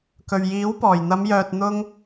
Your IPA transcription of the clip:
kɵ˨ɥjiː˨˥wpɔː˨˩j n̪ɐ˨˧mjœː˨t̚n̪ʊ˧ŋ

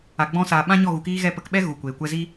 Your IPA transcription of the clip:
a˨ɡ͡bɔ̃˧saː˨ ɓã˦ɲɔ˦˨ɣu˨kiː˦ ɣɛ˧ pə˨˦kɓɛ˦ ɣu˨kʷeː˨kʷɛ˦ zi˦

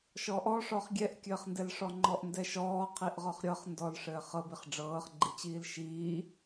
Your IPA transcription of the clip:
ʃɔʔɔʂɔχ ɡʲɛʔkʲɘːχndɛlʂɔ ŋ͡ǃɔʔndɛʃɔː qʰiʔʁɔχɾʲɤχ ndɔl ʂɘːχɤbiχ ɖ͡ʐɤːχɡ͡ǃit͡ɕiːl ʃiː

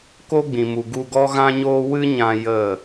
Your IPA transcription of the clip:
ko˦ɡ͡bĩ˨mu˨ ɡu˧ɡɔ˦ɣã˦ɲoː˦ wɨ˦ɲã˧ jə˦˨

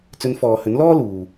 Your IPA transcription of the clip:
t͡sɵ˨˧nfɔː˨hɵ˨˥nlɔː˥ luː˨

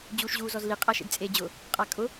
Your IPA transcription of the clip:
d͡ʑuːʃʑuːzɔzli qʼaʃḛdt͡sʼeːd͡ʑʊ | qʼakʼʊ

